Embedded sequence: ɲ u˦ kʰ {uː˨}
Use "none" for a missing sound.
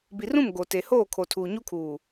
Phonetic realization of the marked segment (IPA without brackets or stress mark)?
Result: uː˨